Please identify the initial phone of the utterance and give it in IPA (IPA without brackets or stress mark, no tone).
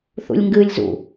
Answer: θ